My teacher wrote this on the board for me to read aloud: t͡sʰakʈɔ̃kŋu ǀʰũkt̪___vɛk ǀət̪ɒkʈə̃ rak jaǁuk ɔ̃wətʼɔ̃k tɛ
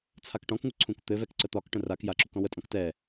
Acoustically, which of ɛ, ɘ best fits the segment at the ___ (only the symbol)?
ɘ